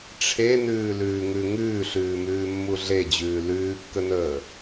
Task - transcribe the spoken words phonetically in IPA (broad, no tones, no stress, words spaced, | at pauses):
ʈ͡ʂʰenʉːlʉːŋʉ ŋʉːɬʉːmʉːmːu ɮed͡ʑʉː lʉːkːənəː